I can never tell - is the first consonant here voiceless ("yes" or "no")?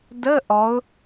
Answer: no